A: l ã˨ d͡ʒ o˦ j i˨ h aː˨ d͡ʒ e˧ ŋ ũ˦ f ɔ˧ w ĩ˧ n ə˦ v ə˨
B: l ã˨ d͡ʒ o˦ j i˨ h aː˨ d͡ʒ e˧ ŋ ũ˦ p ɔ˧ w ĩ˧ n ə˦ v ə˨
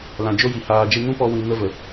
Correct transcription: B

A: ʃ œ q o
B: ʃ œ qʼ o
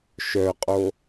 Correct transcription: B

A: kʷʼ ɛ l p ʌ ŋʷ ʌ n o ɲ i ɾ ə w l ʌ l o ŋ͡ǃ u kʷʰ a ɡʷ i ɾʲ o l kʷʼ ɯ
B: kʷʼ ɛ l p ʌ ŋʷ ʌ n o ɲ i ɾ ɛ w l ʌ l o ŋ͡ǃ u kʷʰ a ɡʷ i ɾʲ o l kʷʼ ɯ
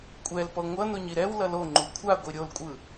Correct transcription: B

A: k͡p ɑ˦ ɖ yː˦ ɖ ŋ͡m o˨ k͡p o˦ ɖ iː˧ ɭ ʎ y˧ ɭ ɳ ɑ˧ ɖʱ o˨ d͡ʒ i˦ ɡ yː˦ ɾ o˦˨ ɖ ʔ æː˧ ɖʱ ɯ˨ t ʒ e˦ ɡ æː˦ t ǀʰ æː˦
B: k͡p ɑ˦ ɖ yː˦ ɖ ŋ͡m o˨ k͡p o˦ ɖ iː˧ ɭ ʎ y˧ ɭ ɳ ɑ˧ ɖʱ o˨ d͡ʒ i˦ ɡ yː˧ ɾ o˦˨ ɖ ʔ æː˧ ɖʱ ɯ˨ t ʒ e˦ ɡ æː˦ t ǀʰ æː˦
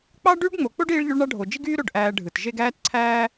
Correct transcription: A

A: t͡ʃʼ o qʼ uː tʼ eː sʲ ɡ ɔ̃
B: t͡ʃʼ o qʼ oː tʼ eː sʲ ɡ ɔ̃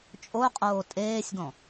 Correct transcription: B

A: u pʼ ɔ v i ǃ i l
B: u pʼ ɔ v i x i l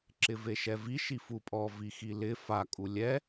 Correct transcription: B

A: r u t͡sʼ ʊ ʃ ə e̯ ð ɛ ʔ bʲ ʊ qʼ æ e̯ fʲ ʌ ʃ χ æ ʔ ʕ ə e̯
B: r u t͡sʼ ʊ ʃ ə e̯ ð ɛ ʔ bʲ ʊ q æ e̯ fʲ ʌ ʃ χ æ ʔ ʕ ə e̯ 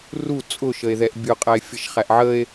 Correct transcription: A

